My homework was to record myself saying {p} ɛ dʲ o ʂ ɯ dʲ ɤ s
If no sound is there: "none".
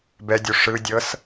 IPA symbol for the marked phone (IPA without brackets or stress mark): b